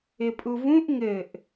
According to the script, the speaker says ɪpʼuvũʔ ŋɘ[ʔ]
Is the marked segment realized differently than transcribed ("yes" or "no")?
no